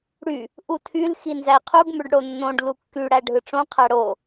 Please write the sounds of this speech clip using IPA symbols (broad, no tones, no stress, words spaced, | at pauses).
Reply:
ɽy | ʔutʰyl xinzæqʰuɡ møɖɽonːõɖ lukːy ɽæɖʱɯʈ͡ʂõ qʰæɽo